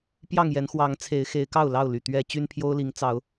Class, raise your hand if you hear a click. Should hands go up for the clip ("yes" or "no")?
no